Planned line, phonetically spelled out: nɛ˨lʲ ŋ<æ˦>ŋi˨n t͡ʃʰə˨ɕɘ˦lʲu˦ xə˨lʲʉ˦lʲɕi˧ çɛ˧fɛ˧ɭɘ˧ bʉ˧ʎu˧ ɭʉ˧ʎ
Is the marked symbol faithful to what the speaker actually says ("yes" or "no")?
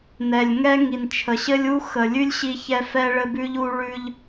no